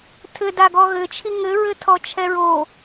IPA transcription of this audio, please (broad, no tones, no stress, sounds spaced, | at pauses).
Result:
tʰ ɘ d a ɡ ɔ ɣ ɘ t͡ʃʰ i ŋ ɘ ɹ ɘ tʰ ɔ t͡ʃʰ ɛ ɹ o